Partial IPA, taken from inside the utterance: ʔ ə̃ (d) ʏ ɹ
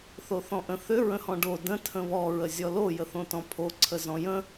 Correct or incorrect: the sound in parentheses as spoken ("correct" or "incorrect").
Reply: incorrect